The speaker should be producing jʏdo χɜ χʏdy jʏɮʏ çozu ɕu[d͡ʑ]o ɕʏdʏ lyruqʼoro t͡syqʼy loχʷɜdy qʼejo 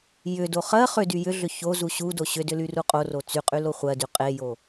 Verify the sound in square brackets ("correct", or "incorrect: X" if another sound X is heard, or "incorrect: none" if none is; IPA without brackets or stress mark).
incorrect: d